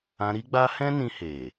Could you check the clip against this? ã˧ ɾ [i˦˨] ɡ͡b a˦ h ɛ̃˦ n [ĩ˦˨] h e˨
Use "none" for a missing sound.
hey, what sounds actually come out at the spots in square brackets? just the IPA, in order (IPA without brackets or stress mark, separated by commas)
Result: i˦, ĩ˧